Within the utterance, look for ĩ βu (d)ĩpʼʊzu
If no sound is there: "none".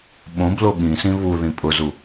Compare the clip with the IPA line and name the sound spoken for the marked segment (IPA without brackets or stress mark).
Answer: ð